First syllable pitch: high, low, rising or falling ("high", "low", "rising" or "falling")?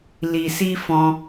low